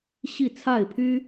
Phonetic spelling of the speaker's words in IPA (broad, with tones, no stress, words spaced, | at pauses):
ɕi˥˨t͡sʰa˥˨ɪ̯pʰy˦